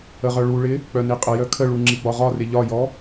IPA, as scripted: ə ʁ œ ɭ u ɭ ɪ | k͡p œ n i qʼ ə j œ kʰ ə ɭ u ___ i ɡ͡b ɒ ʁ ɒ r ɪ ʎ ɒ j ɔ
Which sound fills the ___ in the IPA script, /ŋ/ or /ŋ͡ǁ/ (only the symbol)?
ŋ͡ǁ